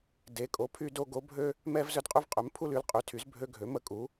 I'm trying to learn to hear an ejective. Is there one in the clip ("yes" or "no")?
yes